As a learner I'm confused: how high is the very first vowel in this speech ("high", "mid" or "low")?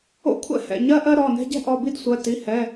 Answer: mid